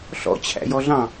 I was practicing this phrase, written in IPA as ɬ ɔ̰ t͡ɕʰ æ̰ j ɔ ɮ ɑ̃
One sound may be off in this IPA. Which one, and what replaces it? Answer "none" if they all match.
none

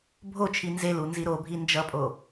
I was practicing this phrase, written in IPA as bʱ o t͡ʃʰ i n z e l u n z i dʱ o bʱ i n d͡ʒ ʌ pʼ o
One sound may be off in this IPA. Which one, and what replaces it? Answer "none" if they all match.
dʱ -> ɾ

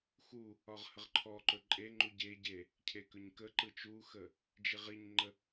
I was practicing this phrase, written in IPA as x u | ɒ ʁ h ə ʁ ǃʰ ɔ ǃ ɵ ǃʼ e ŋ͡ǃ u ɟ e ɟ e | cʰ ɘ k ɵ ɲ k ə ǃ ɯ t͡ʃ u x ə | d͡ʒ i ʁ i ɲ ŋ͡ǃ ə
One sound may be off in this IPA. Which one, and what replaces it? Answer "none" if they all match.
ɘ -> e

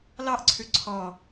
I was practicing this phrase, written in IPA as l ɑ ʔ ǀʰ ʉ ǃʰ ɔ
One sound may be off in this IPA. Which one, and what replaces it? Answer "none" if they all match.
ǃʰ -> ǀʰ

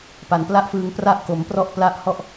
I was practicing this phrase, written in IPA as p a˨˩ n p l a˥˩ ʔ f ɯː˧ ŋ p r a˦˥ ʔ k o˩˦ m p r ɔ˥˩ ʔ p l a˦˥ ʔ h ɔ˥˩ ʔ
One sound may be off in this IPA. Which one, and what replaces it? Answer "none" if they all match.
none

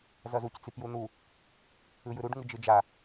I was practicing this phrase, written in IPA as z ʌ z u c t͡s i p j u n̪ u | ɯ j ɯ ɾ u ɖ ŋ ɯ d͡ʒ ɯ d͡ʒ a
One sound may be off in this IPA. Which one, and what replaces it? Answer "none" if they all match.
none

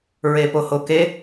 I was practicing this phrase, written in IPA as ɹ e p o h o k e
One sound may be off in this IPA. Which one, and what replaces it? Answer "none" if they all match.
none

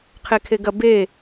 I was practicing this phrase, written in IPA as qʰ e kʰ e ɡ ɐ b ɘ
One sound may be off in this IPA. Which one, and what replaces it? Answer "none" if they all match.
ɘ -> e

